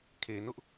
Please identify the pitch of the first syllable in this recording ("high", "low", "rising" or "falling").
low